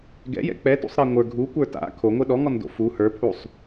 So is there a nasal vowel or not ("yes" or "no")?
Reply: no